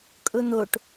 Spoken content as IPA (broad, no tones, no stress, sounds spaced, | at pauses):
kʼ ʊ n̪ o ʈ